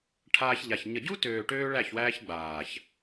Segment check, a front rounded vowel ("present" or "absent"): present